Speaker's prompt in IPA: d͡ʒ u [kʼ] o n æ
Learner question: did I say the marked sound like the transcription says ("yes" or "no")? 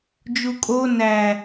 yes